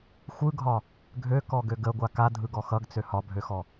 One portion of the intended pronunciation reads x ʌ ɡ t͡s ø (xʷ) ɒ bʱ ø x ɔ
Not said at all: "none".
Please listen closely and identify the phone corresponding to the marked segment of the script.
h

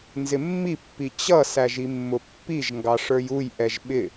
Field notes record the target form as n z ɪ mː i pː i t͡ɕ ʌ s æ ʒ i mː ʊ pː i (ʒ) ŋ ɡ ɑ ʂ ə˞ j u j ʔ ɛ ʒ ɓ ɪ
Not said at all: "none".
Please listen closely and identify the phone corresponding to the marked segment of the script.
ʒ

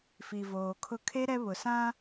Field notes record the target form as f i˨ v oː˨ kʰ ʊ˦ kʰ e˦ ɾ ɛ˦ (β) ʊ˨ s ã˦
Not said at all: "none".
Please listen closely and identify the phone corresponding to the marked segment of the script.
β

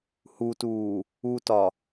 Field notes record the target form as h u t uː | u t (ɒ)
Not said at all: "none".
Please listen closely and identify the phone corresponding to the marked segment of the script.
ɒ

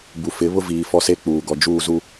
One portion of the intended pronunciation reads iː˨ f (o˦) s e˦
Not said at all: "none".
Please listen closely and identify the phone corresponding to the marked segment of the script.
ɔ˦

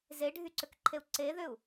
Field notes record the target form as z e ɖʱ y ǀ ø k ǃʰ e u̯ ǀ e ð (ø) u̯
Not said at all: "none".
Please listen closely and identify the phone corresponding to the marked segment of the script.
ø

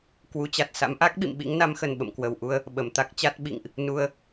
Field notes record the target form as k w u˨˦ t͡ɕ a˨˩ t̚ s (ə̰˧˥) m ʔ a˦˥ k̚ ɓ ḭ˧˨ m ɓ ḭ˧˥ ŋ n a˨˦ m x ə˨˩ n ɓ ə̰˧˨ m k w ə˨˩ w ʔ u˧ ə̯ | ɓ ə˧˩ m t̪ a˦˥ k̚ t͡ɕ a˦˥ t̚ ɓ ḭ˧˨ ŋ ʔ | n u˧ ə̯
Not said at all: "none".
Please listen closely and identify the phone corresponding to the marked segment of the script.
a̰˧˥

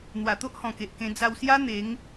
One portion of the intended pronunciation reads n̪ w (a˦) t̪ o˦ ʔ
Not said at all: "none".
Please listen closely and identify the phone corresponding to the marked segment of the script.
a˨˩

